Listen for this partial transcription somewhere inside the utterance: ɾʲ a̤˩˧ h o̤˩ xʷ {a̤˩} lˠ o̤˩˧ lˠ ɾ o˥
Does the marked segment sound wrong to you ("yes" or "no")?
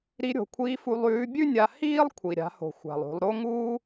no